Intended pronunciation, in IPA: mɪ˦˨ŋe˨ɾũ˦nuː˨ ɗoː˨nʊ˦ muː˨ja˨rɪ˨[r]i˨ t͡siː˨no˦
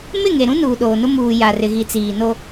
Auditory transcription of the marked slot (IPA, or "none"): ɣ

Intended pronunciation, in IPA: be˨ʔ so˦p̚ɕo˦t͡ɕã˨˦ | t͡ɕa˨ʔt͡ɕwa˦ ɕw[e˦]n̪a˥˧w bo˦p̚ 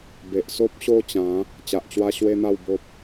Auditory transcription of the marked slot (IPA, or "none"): e˦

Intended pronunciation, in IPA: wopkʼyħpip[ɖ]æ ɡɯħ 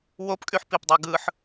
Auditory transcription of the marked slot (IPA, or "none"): dˤ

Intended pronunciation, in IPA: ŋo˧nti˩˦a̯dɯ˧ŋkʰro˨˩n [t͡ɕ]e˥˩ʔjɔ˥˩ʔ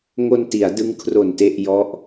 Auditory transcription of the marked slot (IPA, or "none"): t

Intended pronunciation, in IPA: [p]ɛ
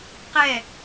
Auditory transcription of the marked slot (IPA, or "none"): q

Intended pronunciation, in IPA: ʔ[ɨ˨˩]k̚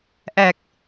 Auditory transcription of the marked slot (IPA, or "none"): ɛ˨˩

